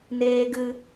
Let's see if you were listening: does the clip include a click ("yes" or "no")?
no